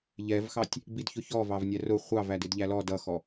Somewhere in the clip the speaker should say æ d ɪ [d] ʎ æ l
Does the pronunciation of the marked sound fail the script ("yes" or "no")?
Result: no